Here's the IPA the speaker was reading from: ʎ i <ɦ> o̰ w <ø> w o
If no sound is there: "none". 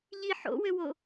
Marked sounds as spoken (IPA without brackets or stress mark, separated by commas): ħ, ø